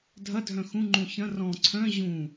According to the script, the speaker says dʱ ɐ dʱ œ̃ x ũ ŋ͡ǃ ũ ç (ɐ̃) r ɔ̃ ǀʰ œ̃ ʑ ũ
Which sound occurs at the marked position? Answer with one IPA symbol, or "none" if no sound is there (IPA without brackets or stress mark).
ɐ̃